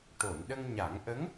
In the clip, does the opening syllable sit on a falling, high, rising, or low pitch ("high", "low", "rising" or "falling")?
low